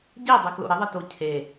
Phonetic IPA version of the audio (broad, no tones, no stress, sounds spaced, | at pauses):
ɟ e dˤ ɨ k l o̰ ɾ ɪ ðˤ ɨ t o cʰ e